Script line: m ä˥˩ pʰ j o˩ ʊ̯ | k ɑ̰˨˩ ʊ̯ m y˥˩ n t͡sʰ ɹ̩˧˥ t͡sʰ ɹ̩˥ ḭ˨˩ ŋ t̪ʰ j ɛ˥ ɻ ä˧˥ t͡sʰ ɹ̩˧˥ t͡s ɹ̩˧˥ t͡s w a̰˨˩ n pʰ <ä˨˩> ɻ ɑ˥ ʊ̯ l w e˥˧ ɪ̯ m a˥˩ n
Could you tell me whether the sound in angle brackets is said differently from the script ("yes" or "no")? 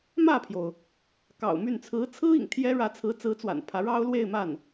yes